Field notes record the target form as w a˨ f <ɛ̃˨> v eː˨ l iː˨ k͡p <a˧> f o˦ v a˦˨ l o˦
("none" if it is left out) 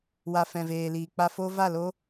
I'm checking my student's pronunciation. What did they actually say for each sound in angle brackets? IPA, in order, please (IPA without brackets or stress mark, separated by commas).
ɛ̃˨, a˧